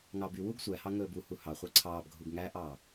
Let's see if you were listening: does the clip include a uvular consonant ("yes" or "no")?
yes